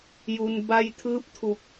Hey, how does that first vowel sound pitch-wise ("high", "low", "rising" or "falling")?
low